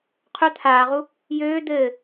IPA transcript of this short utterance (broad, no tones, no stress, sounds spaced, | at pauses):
qʰ œ t̪ʰ aː ʁ u | j øː d̪ ɘː